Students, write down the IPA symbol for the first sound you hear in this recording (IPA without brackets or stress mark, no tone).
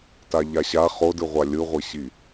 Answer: t